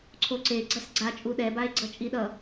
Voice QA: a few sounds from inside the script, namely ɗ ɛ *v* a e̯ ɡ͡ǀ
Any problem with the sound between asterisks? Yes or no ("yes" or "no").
yes